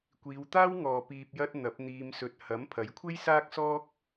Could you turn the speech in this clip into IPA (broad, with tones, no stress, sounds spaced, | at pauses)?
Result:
kʷ iː˨˧ w t̪ aː˥ w ŋ ɔː˨ p iː˨ p̚ j ɐ˧ t̚ n̪ ɐ˨˥ p̚ n̪ iː˧ m s ɵ˧ t̚ h ɐ˨˥ m pʰ ɐ˨˥ j kʷʰ e˥ j s aː˥ k̚ s ɔː˥ k̚